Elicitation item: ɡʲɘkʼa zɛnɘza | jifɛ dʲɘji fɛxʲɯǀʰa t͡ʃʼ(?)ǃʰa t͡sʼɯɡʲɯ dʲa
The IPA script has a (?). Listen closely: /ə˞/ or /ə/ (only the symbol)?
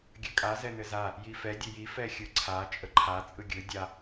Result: ə